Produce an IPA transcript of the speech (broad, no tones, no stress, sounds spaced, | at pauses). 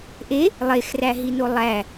ʔ e | lˠ e x r æ ɦ i n o lˠ æ